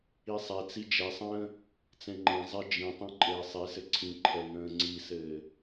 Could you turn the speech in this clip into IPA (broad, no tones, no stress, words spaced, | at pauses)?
isˤɛt͡si d͡ʒɛsˤə̃ː | t͡sɛ̃ŋ͡ǃɛ̃zˤe d͡ʒĩtˤĩ ǃʼɘːsˤisɘ ǀʰĩǃʰɛ ŋə̃ːŋ͡ǀisɘː